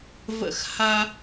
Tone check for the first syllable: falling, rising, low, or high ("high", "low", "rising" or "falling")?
falling